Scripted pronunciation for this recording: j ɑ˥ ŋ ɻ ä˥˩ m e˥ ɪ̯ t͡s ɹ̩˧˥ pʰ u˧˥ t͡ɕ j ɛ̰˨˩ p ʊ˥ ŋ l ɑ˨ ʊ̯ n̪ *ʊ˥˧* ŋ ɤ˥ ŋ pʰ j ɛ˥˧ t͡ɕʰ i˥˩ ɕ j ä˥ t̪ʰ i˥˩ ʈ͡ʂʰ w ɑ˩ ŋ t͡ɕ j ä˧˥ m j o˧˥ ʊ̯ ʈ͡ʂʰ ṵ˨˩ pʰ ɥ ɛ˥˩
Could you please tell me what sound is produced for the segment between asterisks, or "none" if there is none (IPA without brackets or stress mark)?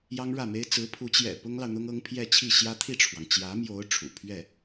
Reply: ʊ˥